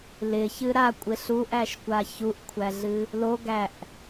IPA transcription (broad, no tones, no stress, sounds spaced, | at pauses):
l ɪ ç ɨ ɾ a kʷʼ ɪ ɬ u ʔ æ ʃ kʷ a ç u ʔ kʷʰ æ ɮ ɨ | l o ɡ æ ʔ